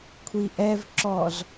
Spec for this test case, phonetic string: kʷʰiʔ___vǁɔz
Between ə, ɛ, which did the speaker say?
ɛ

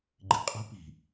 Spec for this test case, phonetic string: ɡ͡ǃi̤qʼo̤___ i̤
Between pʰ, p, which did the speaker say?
p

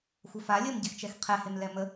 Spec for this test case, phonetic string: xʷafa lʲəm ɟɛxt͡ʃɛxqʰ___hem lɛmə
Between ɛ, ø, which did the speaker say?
ɛ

